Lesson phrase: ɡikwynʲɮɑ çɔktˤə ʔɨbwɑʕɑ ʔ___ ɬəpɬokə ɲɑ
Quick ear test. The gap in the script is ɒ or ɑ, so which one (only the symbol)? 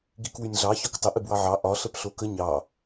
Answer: ɒ